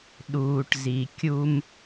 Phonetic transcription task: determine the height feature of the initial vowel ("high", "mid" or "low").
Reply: high